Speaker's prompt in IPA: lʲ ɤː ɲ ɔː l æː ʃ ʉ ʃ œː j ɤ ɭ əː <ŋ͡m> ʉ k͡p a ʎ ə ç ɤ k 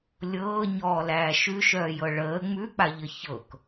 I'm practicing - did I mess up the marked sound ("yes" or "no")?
no